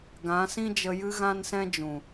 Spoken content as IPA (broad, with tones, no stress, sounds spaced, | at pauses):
ɡ ã˨˦ s ĩ˦ d͡ʒ ə˧ j ɨ˦ ɣ ã˦ n s ɛ̃˦ d͡ʒ ũ˨